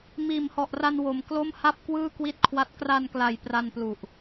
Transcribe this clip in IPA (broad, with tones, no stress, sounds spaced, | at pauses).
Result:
m iː˨˩ m h ɔ˨˩ ʔ r a˧ n w o˨˩ m k l o˥˩ m h a˥˩ p̚ k w ɯː˥˩ k w i˥˩ t̚ kʰ w a˦˥ t̚ k r a˧ n k l a˨˩ j p r a˧ n p l u˨˩ ʔ